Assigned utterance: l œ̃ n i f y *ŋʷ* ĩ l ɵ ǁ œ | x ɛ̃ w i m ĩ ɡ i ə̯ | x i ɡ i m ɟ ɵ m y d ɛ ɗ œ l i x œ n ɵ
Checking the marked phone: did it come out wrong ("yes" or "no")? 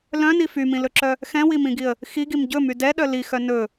yes